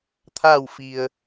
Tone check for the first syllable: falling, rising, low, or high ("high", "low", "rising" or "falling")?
falling